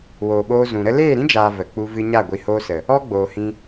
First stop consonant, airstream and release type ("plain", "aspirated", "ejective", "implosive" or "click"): implosive